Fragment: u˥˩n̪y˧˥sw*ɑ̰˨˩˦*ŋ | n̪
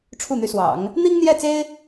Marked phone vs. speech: correct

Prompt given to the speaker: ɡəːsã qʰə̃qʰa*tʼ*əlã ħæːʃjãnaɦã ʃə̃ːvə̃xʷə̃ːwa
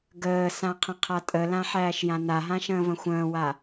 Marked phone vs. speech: correct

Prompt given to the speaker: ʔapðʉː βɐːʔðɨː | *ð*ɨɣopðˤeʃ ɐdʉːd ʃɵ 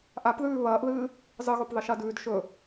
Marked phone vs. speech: incorrect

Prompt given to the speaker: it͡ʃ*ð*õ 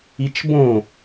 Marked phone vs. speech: incorrect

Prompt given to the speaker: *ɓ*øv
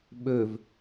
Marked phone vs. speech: correct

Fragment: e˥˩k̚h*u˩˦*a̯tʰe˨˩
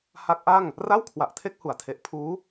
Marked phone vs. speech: correct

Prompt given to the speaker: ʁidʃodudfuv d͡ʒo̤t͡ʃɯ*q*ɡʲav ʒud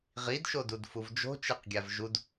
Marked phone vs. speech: correct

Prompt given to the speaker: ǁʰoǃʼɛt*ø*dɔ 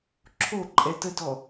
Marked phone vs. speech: incorrect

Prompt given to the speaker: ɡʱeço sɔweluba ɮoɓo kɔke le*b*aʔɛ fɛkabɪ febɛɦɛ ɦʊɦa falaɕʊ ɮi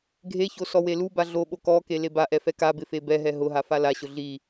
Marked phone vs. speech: correct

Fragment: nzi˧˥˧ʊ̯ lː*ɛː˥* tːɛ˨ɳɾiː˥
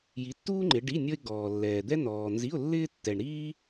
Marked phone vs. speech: incorrect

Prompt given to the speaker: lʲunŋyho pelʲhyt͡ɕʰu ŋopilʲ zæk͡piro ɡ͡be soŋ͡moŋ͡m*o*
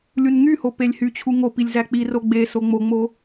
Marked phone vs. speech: correct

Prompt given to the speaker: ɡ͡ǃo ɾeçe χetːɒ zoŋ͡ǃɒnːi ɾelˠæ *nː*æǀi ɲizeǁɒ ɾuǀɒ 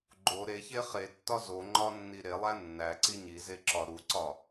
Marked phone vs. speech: correct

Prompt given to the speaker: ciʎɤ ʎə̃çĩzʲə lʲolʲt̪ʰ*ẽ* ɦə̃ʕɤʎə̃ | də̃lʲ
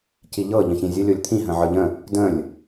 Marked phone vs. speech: incorrect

